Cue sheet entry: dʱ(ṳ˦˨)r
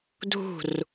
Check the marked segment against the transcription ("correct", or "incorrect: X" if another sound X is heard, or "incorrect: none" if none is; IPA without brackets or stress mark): correct